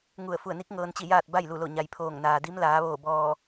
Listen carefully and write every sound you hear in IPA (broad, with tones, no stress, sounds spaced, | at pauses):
ŋ u˧˩ ə̯ f u˧˩ ə̯ n i˧˥ k̚ ŋ ɤː˧ n t͡ɕ i˥˨ j aː˥˨ t̚ b a˥˨ j l u˧˩ l o˧˩ ɲ a˩ j pʰ oː˧˩ ŋ n aː˩ d i˧˥ m l aː˩˧ ʋ oː˧˩ b ɔː˧˩